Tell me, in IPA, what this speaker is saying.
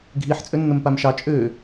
ɡʱ i ħ t͡sʼ ø nː ə m p a m ʃ ɑ t͡ʃʼ ø

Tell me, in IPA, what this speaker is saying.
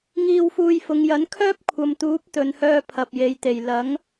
ŋ iː˧ w f uː˧ j f ʊ˨˧ ŋ j ɐ˨˥ n kʰ œː˥ p̚ kʷʰ ɐ˨ m t̪ uː˨˥ p̚ t̪ ɵ˨ n h œː˧ pʰ ɐ˨ p̚ j e˨˧ j t̪ e˨˩ j l ɐ˨˥ ŋ

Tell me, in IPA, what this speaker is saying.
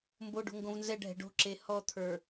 m b o ɖ o̤ ŋ ɡ õ v n z ɛ ɖʱ ɛ̤ ɖ o̤ ǁ e h ɔ t̪ʰ ə˞

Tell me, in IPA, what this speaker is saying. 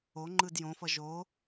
o ŋ͡ǃ ɯ d j õ f ʌ ʒ o

